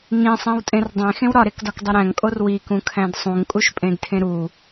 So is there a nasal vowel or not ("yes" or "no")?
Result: yes